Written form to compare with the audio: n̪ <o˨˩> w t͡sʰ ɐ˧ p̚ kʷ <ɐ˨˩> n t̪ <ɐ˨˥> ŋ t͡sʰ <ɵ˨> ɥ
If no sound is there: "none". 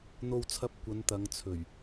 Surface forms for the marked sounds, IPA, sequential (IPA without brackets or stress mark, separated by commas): o˧, ɐ˨˧, ɐ˨˧, ɵ˨˩